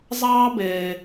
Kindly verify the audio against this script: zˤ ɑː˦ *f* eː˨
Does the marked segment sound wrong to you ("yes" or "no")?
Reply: yes